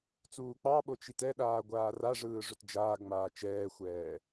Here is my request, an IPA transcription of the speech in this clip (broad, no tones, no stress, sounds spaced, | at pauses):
t͡s uː k͡p ɑ ɓ o t͡ʃ i t ɛ ɗ aː ɡʷ aː r a ʐ ɯː ʐ ɵ t d͡ʒ aː ɡ ŋ͡m aː t͡ʃ ɛː xʷ ɛː